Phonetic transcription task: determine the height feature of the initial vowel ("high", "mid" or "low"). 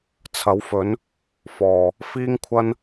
low